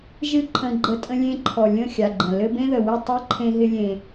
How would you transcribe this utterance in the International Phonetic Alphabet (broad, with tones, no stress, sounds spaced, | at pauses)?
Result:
ʒ ɨ˦ ǃʰ ə̃˧ ɡ͡ǃ ə˧ tʼ ə̃˧ lʲ ẽ˧ ǃʰ ɔ˨ lʲ ə̃˦˨ xʲ a˨ ɡ͡ǃ ə̃˨ l ɘ˧ b ẽ˦ ð ə˨ w ɪ˦˨ tˤ ɨ˦ ǃʰ ẽ˧ ɦ ɪ˧ lʲ ẽ˨